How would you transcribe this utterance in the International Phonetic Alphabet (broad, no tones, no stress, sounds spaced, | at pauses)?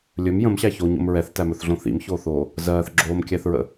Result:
lʲ ɵ m j ə̃ m ɕ æ ç o ɲ o̰ m ɹ ɛ θ t æ m ɵ θ ɮ õ θ ḭ m ç oː θ oː | z ɜː θ ɡ͡ǁ oː m kʲ æ θ ɹ ə̰